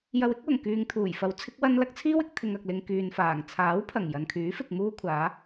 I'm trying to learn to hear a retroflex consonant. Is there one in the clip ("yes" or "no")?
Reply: no